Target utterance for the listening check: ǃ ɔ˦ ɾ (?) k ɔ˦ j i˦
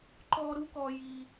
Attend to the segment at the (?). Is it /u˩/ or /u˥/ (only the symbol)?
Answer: u˥